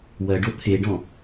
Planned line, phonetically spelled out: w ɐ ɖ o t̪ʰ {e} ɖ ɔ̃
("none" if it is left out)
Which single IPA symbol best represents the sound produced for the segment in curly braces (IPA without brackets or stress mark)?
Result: e